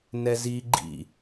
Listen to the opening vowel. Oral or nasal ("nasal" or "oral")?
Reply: oral